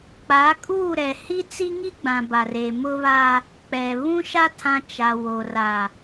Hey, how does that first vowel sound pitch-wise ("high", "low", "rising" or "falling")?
rising